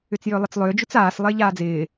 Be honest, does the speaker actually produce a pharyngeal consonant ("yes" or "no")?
no